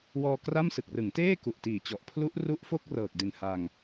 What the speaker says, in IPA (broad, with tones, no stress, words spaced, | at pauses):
wɔː˧kra˥˩m sɯ˨˩k̚rɯ˩˦ŋteː˥˩ ku˨˩ʔtiː˨˩t͡ɕɔ˨˩ʔ pʰlu˦˥ʔru˦˥ʔfo˥˩k̚ rɤː˨˩k̚di˨˩n ha˧ŋ